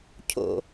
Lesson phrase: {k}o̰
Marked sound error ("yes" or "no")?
yes